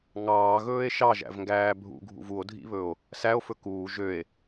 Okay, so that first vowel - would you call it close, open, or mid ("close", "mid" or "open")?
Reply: open